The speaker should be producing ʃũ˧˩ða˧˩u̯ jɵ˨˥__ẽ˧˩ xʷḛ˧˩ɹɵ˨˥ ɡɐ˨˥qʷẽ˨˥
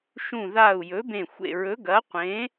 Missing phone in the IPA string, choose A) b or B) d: A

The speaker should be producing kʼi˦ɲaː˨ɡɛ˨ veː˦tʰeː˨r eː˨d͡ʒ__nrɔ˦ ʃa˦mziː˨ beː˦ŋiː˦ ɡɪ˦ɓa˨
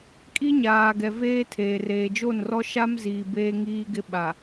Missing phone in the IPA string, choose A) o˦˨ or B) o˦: A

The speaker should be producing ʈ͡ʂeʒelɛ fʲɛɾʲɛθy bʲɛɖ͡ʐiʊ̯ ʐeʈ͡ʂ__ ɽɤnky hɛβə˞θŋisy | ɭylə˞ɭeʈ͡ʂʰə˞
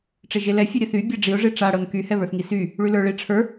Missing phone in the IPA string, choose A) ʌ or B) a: B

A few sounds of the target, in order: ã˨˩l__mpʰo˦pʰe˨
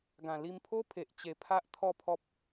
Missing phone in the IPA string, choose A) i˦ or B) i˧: B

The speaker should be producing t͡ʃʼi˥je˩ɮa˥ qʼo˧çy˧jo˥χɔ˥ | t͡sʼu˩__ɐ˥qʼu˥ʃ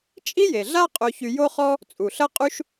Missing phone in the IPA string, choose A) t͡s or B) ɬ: B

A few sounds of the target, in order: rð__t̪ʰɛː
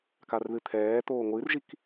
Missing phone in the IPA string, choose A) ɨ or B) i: A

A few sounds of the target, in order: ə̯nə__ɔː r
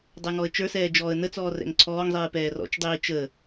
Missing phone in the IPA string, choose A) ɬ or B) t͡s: B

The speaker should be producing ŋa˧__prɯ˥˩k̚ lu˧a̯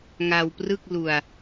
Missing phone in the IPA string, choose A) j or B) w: B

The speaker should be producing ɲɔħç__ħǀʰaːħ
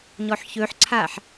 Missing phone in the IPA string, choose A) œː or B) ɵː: B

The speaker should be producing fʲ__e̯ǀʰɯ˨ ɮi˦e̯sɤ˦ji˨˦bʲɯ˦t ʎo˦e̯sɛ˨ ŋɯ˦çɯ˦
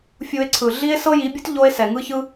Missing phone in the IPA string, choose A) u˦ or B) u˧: B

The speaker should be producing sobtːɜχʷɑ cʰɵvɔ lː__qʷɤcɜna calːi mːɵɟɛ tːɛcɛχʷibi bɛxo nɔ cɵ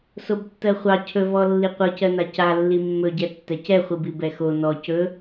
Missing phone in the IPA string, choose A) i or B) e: A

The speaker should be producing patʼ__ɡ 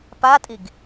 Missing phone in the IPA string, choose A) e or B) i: B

